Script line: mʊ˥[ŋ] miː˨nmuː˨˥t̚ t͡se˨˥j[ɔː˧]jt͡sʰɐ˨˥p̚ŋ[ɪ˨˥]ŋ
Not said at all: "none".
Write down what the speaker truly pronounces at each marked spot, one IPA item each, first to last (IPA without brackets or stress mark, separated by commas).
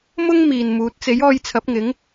ŋ, ɔː˧, ɪ˨˥